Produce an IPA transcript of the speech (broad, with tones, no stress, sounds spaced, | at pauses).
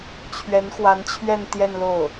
t͡ɕʰ ɥ ɛ˧˥ n x w a˧˥ n t͡ɕʰ ɥ ɛ˥˧ n t̪ j ɛ˥˧ n l o˥˩ ʊ̯